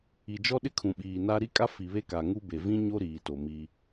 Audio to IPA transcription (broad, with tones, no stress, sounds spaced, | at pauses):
i˨ d͡ʒ ɔ˦ ɗ ɪ˦ kʰ ũ˨ ɓ iː˨ n a˦ ɾ i˦ kʼ a˦ f i˨ β e˦ k a˨ ŋ u˦ b e˨ v ĩ˦ ɲ o˦ ɾ iː˨ t o˨ m i˦